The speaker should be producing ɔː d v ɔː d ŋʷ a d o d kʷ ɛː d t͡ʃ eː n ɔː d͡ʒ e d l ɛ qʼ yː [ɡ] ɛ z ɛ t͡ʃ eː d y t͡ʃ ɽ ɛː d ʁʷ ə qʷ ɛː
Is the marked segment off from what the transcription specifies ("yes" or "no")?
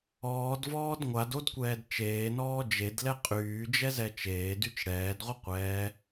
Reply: yes